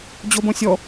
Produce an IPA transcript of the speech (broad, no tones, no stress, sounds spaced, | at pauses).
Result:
d͡ʑ o b õ sʲ ɔ